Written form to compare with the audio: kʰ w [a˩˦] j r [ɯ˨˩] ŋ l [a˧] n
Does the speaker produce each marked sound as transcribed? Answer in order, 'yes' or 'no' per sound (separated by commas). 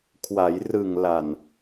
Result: yes, yes, no